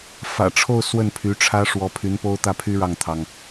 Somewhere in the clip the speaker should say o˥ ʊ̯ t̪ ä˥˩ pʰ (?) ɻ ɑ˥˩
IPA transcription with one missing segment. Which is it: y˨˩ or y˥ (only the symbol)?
y˥